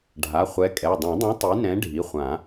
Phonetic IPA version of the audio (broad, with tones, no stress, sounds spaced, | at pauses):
ɖʱ a˩˧˩ χʷ ɛ˨˥ kʼ ɛ˩˧˩ dˤ ɛ̃˨˩˦ dˤ ũ˨˥ tˤ i˨˥ n ɛ̃˨˥ ɖʱ i˩˧˩ χʷ ã˨˩˦